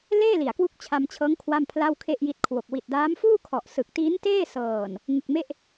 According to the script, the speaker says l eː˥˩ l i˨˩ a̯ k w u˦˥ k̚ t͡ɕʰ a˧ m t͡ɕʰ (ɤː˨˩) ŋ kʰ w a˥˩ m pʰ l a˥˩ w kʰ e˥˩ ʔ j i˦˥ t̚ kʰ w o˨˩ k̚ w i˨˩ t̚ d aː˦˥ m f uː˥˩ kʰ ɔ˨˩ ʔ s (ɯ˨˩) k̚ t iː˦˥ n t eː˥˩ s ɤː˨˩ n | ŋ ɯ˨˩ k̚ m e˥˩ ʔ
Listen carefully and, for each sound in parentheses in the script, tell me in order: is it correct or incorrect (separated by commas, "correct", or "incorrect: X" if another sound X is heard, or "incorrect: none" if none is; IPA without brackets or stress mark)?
incorrect: ɤː˦˥, correct